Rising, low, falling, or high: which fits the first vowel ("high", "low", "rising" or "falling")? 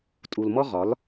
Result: low